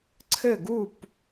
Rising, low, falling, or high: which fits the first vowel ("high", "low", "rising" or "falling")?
falling